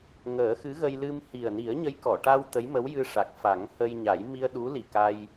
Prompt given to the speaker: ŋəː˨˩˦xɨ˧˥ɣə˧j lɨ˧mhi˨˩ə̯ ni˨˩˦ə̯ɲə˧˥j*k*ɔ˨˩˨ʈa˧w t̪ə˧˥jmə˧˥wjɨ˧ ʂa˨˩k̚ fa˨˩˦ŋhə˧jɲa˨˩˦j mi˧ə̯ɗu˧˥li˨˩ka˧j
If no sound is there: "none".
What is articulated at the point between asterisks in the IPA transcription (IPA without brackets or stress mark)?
k